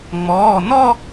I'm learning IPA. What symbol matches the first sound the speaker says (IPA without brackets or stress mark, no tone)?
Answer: ŋ͡m